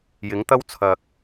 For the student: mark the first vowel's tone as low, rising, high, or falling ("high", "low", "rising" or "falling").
rising